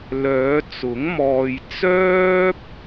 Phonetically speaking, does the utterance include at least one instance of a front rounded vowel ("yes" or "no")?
yes